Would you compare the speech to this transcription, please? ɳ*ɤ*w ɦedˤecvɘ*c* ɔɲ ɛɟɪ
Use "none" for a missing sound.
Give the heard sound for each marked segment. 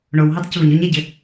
o, ɲ

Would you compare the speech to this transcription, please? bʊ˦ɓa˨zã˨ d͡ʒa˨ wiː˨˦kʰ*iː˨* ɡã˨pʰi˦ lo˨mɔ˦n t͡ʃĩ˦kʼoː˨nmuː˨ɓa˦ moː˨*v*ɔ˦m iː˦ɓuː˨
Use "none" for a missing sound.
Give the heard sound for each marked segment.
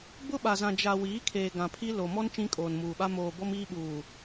eː˨, b

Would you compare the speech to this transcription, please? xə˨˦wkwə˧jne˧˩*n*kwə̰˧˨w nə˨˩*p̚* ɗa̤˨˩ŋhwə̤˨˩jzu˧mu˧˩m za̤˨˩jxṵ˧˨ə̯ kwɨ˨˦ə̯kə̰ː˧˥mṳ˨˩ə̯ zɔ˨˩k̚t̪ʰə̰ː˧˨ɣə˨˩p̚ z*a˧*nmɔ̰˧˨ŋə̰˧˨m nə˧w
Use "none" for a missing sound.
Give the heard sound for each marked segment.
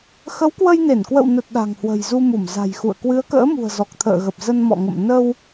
n, t̚, ə˧

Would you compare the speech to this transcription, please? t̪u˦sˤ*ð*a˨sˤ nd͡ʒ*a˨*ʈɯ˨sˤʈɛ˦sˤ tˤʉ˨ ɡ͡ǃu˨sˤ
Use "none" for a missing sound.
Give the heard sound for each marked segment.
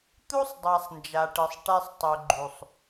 dˤ, a˨

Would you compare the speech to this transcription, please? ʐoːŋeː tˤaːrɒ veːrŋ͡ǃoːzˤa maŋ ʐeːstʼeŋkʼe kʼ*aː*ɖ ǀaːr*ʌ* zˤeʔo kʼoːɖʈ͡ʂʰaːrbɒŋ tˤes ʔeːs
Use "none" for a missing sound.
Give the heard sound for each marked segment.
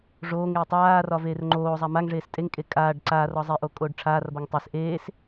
aː, ɒ

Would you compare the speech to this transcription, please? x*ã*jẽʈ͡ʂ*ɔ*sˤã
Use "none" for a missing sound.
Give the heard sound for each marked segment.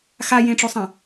a, o

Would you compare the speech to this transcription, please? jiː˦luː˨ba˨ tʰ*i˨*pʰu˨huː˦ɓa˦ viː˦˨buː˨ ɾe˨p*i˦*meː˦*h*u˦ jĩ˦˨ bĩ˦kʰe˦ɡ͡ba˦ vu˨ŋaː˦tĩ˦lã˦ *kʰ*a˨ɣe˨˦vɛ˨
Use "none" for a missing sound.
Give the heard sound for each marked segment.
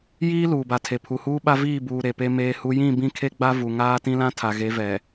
e˨, e˦, h, tʰ

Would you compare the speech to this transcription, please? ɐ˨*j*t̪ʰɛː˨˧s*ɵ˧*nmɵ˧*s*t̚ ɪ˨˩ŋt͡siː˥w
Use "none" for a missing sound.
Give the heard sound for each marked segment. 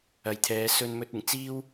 j, ɵ˧, none

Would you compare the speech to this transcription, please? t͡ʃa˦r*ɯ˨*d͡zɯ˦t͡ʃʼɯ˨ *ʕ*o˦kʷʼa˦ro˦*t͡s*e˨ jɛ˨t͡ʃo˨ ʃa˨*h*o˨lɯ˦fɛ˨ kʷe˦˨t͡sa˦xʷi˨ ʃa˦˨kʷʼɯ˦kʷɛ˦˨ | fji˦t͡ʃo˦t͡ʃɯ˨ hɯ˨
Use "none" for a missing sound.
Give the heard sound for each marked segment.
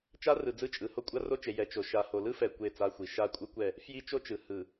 ɯ˨, h, t͡ʃ, h

